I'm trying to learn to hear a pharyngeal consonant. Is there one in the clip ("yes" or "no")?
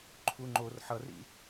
yes